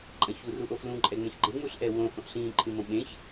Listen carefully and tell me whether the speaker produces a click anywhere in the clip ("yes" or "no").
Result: yes